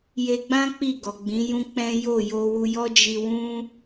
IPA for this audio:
je˧ɡ͡bã˦ k͡pi˦˨ɡɔ˨ɡ͡bĩ˨˦jũ˦ k͡pɛ̃˦jo˦˨ jo˧wu˧jɔ˦ d͡ʒi˧wũ˦

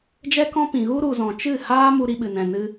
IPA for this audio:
d͡ʒɛ˦kɔ̃˦ pĩ˨ ɣu˦ɾu˨zɔ̃˨ t͡ʃɨ˦˨ haː˦mu˧ ɾi˧ɓɨ˨nɛ̃˨nɨ˧

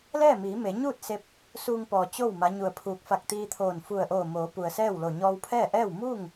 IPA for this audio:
lɛː˥˨miː˩˧ me˩˧ɲuː˥˨t̚ se˧˥p̚ | suː˧ŋpɔː˩ t͡ɕo˥˨w ma˧˥ɲu˧˩ə̯pʰuː˧k̚ fa˧˩k̚t̪iː˧t̪ʰoː˧˩n fu˧˩ə̯ʔoː˧˩moː˩˧ pu˩ə̯sɛː˥˨wlo˧˩ ɲɔː˧wpʰɛː˥˨ʔɛː˥˨w muː˥˨ŋ

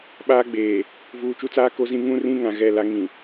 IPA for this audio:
ɓaː˦ɡ͡beː˨ | vuː˨t͡ʃu˦t͡saː˦ ko˦zĩ˦ ŋũ˦rĩ˦ ŋã˨ɣɛ˦˨ la˦ ŋĩ˨

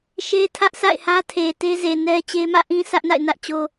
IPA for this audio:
ʃe˦tʰä˦ʔ sa̰˦˨ɪ̯hä˦tʰe˨ te˦ze˨ nɛ˦t͡ɕe˦ mä̰˦˨ʔĩ˦ sʰä˦ʔna̰˦˨ɪ̯nä˦ʔ t͡ɕo˦

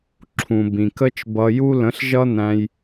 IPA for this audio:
ǁʰũ˨bĩ˨kə˦t͡ʃ bʌ˧ju˦ lə̃˨˦ɬʒʌ˦næ̃˧j

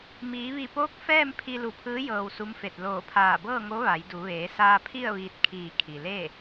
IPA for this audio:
miː˩˧ʋi˧˩poː˧˥k̚ fɛː˥˨m pʰi˧lu˧˩pʰɯː˧˥ jɤː˧wsu˧˥mfe˧˩t̚ loː˧˩pʰaː˧˩bɤː˥˨ ŋo˧˥ʋa˩˧jdu˩˧ ʋeː˩˧saː˧ pʰi˥˨ə̯ʋiː˧t̚kʰiː˧˩ kʰi˩leː˥˨

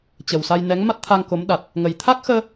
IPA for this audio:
t͡ɕə˨˩wsa˧j nɛ˨˦ŋma˦˥t̚t̪ʰa˧ŋ ko˨˦mɗa˨˩t̚ | ŋə˨˩j t̪ʰa˦˥k̚xəː˧

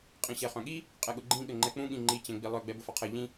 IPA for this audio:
qʼĩɕɛχœ̃ɠi | qʼɛɠʊɡ͡ǃĩ ɠɘŋ͡ǃɛk͡pũ ɠĩŋ͡ǃi t͡ɕɛ̃ɡ͡bilˠœ ɡ͡bɛbʊfɒqʰɘ ʎĩ

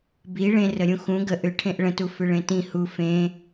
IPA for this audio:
bi ɭẽrəɾʲũ xũ ɡə ʔʏʈʰẽʔ ɭə̃tufʏ ɭẽtĩ hu fẽ

